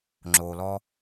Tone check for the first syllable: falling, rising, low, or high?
low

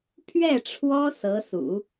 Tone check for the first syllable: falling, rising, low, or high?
falling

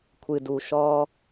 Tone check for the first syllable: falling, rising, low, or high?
low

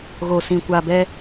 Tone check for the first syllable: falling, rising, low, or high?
low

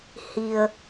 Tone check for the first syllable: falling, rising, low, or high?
low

